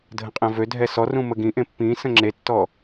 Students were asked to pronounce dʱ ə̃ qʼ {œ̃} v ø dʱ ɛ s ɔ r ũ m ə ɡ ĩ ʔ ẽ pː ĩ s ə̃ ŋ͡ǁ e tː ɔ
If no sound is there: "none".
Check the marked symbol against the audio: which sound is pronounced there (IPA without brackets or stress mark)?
ɛ̃